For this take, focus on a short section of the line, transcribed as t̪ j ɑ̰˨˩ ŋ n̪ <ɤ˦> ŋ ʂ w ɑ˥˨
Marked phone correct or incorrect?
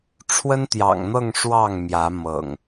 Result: incorrect